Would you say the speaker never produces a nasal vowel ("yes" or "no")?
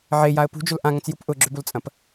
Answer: no